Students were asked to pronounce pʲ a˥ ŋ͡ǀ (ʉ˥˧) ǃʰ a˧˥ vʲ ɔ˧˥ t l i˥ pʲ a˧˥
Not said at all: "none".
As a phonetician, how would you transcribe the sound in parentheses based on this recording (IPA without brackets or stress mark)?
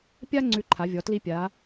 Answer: ʉ˥˧